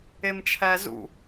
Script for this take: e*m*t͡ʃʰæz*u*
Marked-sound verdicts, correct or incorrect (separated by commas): correct, incorrect